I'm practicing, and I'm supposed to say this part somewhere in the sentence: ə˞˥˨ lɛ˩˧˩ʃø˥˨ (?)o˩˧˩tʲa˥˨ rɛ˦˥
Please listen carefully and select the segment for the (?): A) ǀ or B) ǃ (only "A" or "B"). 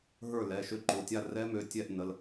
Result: B